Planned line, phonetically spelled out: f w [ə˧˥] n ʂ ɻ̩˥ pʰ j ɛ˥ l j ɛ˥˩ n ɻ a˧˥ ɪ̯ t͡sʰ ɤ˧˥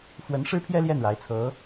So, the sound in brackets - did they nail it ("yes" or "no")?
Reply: yes